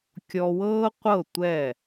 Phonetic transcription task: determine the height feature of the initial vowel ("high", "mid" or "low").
mid